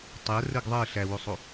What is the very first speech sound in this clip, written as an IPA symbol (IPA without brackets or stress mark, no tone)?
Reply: tˤ